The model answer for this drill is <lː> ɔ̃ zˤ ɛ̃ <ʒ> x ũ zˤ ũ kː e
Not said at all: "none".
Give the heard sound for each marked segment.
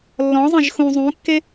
lː, ʒ

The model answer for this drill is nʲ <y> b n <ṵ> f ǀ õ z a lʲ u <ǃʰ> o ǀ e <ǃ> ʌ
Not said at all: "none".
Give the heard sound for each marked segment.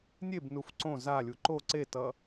e, u, ǃ, t

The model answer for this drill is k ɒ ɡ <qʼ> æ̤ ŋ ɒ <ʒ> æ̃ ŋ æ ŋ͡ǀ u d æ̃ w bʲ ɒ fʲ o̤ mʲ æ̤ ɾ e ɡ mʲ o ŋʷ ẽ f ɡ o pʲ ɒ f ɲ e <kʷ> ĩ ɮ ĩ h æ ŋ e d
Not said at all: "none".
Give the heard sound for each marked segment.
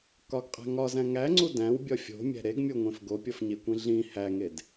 qʼ, z, kʷ

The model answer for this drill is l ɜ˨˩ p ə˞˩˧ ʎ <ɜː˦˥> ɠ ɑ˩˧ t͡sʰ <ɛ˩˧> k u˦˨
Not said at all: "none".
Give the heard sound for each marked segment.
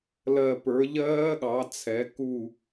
ɜː˦˥, ɛ˩˧

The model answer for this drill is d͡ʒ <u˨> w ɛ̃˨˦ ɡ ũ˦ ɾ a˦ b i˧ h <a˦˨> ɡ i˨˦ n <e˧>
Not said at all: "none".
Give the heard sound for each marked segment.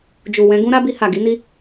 u˨, a˨, i˧

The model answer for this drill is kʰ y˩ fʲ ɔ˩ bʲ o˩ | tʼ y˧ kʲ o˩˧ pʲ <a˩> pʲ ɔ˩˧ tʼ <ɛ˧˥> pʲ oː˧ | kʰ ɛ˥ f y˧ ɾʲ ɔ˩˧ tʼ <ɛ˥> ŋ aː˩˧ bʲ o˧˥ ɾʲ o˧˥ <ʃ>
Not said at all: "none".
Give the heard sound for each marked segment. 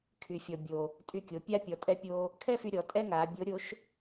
a˥, ɛ˧˥, ɛ˥, ʃ

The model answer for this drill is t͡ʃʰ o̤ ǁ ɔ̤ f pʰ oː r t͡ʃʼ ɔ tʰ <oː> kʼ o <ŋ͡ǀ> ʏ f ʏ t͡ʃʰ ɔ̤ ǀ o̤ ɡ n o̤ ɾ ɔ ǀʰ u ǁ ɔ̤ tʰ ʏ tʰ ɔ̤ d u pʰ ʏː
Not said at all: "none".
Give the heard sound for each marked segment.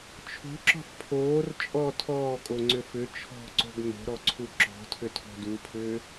ɔː, ŋ͡ǀ

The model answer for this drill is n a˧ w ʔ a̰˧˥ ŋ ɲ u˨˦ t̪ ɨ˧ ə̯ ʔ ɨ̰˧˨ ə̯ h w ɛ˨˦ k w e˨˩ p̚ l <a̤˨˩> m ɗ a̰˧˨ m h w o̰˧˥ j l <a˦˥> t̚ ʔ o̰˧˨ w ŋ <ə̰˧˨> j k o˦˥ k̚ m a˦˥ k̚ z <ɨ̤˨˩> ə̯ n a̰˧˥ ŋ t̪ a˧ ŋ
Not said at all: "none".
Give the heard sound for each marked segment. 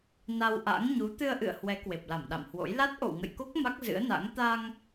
a˧˩, a˦˥, ə̰˧˨, ɨ̰˧˥

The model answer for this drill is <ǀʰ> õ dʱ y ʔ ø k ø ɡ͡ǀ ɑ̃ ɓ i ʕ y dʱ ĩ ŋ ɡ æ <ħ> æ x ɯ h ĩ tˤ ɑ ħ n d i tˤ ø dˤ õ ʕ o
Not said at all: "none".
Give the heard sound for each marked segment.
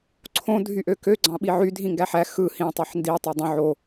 ǀʰ, ħ

